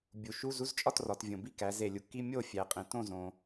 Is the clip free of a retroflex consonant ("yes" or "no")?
yes